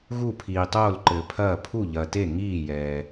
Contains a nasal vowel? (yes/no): no